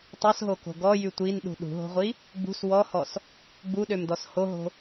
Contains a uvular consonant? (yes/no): yes